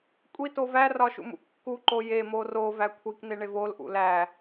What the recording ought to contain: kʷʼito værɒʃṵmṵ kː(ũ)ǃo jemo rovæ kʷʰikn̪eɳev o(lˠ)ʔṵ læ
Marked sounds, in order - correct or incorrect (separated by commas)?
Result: incorrect, incorrect